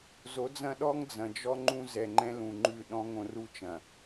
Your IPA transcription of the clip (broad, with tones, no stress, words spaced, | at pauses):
zo˨˦d͡zɐ̃˦ ɗɔ˦ŋd͡zɐ̃˨d͡ʒɔ˦ŋ͡ǃũ˦ zɛ˨ŋ͡ǃɛ̃˦lũ˨ŋ͡ǃʉ˦˨ ɗɔ̃˦ŋõ˦ru˦t͡ʃɐ̃˨